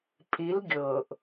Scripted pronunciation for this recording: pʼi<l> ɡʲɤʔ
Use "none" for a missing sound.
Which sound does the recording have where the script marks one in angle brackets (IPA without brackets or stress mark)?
l